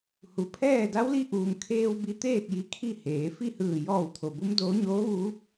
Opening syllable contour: low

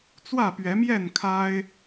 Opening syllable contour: falling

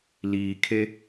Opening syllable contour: low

